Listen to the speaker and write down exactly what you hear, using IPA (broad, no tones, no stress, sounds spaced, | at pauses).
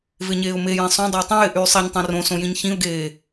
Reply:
v e ɲ eː ʊ̯ m e j ẽ sˤ õ dˤ ə ɪ̯ tˤ ĩ j ɪ ʔ yː sˤ e ɲ tˤ ĩ r õ s õ j ĩ ɲ ç ĩ ʊ̯ ɡ eː